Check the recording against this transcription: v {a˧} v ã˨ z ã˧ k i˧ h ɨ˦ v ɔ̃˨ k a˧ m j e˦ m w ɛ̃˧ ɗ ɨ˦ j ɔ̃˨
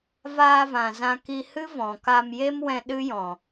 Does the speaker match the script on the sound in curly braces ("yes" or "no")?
no